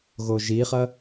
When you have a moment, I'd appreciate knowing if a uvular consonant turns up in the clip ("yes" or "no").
yes